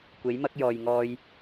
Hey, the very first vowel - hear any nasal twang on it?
no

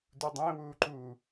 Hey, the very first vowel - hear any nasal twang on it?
no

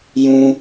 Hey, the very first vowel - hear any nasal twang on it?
yes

